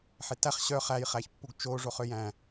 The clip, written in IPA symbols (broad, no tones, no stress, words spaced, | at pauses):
ħetæχ ɕœ χæj χæçpːuɡt͡ʃo ʐoχøjæ̃